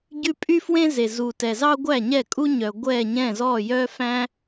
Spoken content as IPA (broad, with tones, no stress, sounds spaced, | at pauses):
ɟ ʉ˥ pʼ y˥ f w ẽ˥ z e˩ z u˩ t ɛ˩ z ɑ˥ ɡʷ æ˥˩ ɲ ɛ˥˩ kʼ u˥ ɲ œ˩ ɡʷ ɛ˥˩ ɲ ɛ̃˥˩ z ɔ˥˩ j œ˥ f æ̃˥